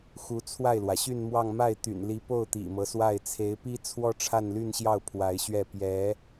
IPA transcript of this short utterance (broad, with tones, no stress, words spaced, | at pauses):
xu˧˥t͡sʰwa˥˩ɪ̯lwä˩ ɕy˥˧n mwɑ˥˧ŋ ma˥˩ɪ̯t̪y̰˨˩nli˧˥po˥˩ʊ̯ t̪ḭ˨˩mɤ˦swa˥˩ɪ̯ t͡sʰe˧˥ɪ̯pi˥t͡sʰwɔ˥ ʈ͡ʂʰa˥˧nly˥˧nɕjɑ˥˩ʊ̯ pʰwa˧˥ɪ̯ɕɥɛ˥˩ pjɛ˧˥